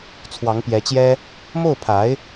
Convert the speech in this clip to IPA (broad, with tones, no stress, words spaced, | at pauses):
t͡sʰwɑ˧˥ŋpjɛ˧˥t͡ɕjɛ˥ | mo˥˩ʊ̯pʰa˧˥ɪ̯